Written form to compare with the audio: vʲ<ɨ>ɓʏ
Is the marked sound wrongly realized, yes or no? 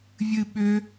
no